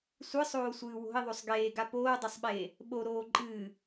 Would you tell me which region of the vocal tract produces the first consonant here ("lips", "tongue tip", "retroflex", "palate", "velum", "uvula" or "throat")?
tongue tip